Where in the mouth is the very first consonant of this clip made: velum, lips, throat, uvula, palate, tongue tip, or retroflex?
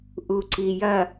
throat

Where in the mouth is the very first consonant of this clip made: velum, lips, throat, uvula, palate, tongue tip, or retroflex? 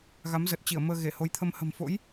velum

